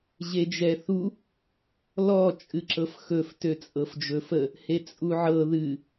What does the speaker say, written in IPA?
ʑ e d͡ʒ ɛ θ u | l ɔ t͡ʃʼ ɨ ǁ ɤ f x ɵ f t ø t͡sʼ ɤ f d͡ʒ ɵ f ə | h e t͡sʼ u ʕ ɤ ð ɨ

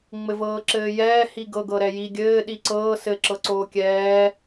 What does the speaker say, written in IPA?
ŋ͡m ɘ v ɤː ǁ ɘː j ɛː h i ɡ ɤ ɡ ɤ ɾ ɛ j i ɡʲ ɘː ɗ i ǀ ɤː s ɘ ǁ ɤ ǀ oː kʲ ɛː

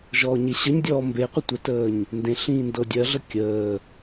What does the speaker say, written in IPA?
ʒ ɔː ɲ e ɕ ə ɲ dʲ ɔː m b e qʷ ə tʷ ə t əː ɲ | n d ẽ ɬ ĩː n d ɤ dʲ ɜ ɮ ə kʲ əː

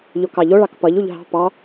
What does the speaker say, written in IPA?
ʎ o k ɑ ʎ o ɭ ɑ k p ʌ ʎ u ʎ ɦ ɑ̤ p ɑ

